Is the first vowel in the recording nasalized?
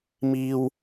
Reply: no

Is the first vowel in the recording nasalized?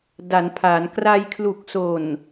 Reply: no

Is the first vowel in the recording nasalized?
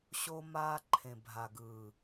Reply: no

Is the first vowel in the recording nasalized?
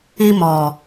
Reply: no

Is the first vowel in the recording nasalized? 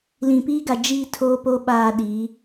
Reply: yes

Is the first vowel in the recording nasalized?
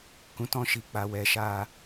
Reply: yes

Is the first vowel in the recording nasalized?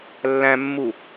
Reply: yes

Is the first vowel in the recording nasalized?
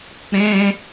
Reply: yes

